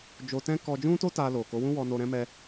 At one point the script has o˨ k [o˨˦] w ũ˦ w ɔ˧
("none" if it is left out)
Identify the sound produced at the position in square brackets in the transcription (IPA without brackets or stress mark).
o˨˦